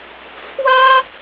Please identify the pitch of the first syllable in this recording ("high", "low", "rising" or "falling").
high